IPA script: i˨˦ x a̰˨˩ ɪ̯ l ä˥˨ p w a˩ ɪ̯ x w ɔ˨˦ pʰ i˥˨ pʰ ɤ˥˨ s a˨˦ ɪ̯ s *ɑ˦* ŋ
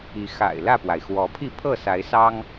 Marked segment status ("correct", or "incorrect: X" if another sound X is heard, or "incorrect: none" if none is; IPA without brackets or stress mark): correct